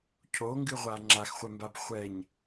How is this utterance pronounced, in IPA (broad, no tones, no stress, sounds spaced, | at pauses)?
cʰ o ŋ ɡ ɨ ʁʷ a ŋ͡ǁ a x χʷ ɛ m b a b χʷ ɛ ɲ